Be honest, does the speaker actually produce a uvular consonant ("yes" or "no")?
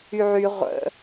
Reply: yes